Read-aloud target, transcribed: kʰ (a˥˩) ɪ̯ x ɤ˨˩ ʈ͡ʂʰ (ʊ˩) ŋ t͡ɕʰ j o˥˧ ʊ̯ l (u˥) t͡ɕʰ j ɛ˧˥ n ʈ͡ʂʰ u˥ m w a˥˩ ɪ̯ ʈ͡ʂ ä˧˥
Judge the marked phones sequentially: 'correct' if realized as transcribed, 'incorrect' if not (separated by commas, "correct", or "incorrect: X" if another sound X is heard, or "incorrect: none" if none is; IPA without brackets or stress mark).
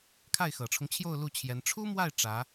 correct, incorrect: ʊ˦, incorrect: u˥˩